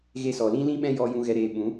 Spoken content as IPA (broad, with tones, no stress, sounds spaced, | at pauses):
ɣ e˧ s ɔ˨ l ĩ˦ l ĩ˦ ɓ ɛ̃˦ j ɔ˦ j ũ˦ ɣ ɛ˧ ɾ eː˧ ɓ ũ˨˦